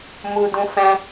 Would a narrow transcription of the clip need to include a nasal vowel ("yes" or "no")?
yes